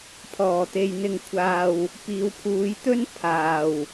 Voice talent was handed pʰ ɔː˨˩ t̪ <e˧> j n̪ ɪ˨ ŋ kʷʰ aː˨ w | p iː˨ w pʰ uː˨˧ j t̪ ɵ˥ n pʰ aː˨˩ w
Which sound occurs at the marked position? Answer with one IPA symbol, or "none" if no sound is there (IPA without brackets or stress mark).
e˨